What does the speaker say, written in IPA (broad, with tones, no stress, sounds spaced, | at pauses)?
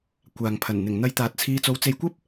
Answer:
kʷ aː˨ ŋ pʰ ɐ˨˩ n n̪ ɪ˨˩ ŋ n̪ ɐ˨˧ j t̪ aː˨ t̚ t͡sʰ iː˧ t͡s o˨˥ w t͡s e˨˧ j kʷ ɐ˥ p̚